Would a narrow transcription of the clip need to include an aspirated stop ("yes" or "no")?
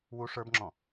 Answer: no